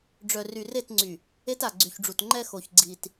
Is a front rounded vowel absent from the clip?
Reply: no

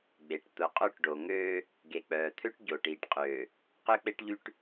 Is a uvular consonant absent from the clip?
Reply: no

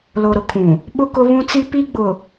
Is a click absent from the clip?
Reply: yes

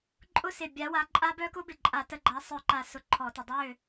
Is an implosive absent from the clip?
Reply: yes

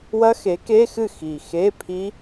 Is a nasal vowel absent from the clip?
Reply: yes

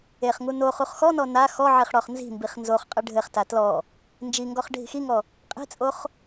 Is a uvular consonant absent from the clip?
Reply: no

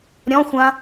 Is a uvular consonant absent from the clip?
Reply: yes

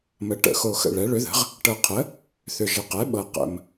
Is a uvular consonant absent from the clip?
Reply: no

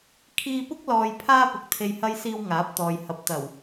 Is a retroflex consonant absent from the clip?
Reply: yes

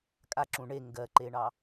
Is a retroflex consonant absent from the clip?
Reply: no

